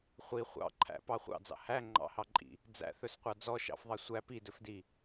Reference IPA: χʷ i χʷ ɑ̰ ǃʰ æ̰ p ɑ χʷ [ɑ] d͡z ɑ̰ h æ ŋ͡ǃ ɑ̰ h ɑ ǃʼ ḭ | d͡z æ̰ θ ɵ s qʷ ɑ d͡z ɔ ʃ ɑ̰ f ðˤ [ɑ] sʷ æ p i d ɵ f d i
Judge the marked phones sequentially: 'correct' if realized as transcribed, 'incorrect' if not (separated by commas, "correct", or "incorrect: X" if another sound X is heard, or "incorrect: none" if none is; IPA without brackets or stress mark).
incorrect: ɑ̰, correct